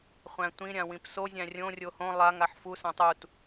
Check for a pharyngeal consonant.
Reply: present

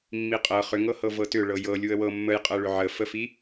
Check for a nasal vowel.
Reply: absent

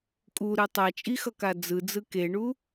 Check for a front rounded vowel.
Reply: absent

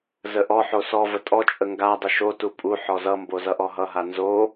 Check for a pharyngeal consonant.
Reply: present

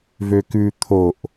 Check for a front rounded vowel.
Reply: present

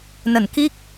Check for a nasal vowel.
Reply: absent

